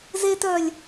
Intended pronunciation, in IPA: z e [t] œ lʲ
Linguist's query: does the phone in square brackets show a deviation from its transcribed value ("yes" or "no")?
no